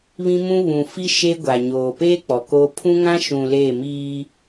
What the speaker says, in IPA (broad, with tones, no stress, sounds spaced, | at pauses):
β ĩ˦ m ũ˦ β ũ˨ f i˦ ʃ e˦ ɡʷ a˨ ɲ oː˨ p eː˦ k͡p ɔ˨ k oː˦ pʰ ũ˦ ŋ ã˦ ʃ ũ˨ l e˦˨ m iː˦